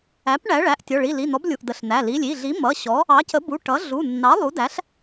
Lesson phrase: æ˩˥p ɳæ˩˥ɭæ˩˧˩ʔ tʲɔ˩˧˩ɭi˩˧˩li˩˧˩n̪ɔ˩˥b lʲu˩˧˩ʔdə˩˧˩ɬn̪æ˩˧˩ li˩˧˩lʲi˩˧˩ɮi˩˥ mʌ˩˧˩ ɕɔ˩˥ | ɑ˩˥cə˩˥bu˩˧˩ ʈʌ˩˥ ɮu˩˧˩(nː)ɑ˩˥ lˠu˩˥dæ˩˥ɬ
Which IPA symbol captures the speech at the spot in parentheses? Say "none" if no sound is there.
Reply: nː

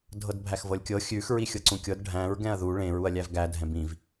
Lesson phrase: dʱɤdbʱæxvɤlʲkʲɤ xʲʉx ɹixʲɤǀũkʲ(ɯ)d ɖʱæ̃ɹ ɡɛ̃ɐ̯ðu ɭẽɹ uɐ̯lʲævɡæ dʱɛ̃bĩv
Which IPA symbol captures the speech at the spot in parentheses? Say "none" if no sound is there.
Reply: ɤ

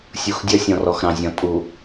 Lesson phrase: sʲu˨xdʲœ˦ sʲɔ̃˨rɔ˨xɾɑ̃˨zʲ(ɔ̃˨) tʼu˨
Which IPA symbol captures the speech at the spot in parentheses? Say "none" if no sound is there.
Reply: ɔ̃˨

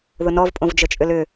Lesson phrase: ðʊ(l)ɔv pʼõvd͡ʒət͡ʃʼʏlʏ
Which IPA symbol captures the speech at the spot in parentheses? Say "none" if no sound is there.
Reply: n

